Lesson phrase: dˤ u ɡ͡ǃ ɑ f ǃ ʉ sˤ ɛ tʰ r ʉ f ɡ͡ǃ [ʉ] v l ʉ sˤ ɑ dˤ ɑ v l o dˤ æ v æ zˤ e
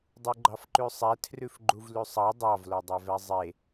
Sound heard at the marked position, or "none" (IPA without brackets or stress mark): u